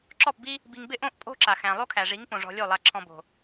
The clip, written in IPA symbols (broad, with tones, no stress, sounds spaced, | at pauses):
ǁ ɔ˦˨ p b i˦ | b i˧ ŋ b ɪ˦ ʔ õ˦ ʔ pʼ o̤˦ ǁ a˨ x æ̃˨ lˠ o˦ kʰ æ˨ ʐ i˨˦ ŋ p õ˨ ʐ ɔ̤˧ lʲ o˦˨ lˠ a˨ ǁʰ ɔ̃˨ b o̤˨